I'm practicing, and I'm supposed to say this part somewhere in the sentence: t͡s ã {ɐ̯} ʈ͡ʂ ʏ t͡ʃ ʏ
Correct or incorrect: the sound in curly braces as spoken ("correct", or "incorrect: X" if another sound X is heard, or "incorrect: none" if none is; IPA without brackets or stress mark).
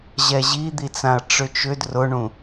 correct